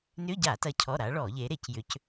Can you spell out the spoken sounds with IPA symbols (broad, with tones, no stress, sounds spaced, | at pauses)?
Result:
n ʏ˧˥˧ ɟ a˧˩˧ t ɐ˨˦ cʰ ɔ˩˧˩ ɾ a˨˦ ɭ ɔ˧˩˧ ʎ e˨˦ ɾ e˧˩˧ c j ʏ˨˦ c